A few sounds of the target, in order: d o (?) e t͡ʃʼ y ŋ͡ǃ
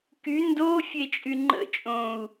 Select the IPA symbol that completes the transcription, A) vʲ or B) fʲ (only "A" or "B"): B